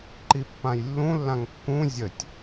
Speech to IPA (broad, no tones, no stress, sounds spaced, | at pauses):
ǃ i pː ã j lː ũ lː ã ŋ kː ũ zʲ ə tʲ